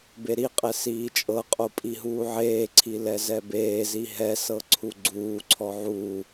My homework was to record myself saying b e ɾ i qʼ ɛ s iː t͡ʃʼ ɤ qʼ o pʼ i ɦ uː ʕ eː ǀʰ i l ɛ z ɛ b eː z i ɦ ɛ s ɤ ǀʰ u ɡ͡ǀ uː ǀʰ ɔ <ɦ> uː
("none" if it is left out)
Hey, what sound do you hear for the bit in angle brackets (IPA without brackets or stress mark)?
ʕ